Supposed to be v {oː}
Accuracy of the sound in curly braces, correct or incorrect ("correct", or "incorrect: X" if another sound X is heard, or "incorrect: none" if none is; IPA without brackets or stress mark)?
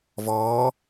incorrect: ɔː